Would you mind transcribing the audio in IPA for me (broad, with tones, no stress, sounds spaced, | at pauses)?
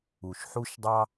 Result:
u˩ ʃ ħ u˥ ʃ dˤ ɑ˥